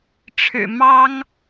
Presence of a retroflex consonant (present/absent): present